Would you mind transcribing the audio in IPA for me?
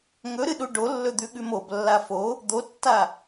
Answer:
ŋɵɾɨɗu ɖolːɵd̪ʉɠʉm oblːa fo | d̪otːa

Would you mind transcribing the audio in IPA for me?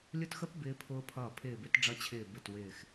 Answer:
lʲʊ˦˨txə˦˥p bɪː˦˥pʰʊː˦˥pʰʌː˦˨ pʰɪː˦˨bɪ˦˥tɖ͡ʐʌ˦˥t͡ɕʰɪː˦˨ bɪ˦˨twɪː˦˨x

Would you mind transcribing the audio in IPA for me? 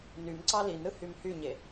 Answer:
nymǀɑ linɾɯ hymhyɲe

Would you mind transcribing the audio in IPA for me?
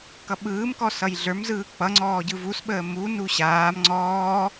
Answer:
kʌɓɯːmkɔ sʌjɮə˞mzɯː k͡pʌŋ͡ǀɔː ɟɯvusɓəː munu ɕaːm ŋ͡ǀɔː

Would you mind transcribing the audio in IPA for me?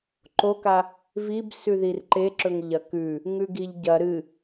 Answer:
ǃoka | vib sʉðirǃeǁɵŋ ʎɐkʉ | ŋʉɡiʎɟɐ ɾɨ

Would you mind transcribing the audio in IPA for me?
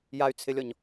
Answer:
jay̯t͡sʰɪlʲɔɲ

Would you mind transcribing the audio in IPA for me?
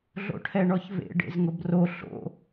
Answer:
ɮo̰ʈʰɛɳɔçvḛ ɖḛzŋʊbro ɬo̰

